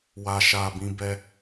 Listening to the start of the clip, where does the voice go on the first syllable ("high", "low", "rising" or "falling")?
low